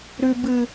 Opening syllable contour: low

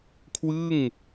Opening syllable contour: falling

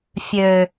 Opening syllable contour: low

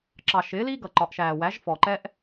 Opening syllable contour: low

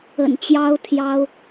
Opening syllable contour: low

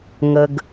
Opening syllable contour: low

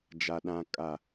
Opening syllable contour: low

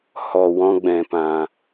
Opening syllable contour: low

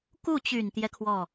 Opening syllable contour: falling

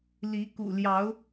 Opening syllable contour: rising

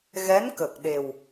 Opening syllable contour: rising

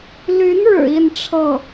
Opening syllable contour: rising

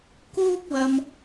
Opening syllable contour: high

